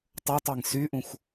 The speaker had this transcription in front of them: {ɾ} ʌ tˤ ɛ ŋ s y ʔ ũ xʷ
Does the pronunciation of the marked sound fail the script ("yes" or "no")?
yes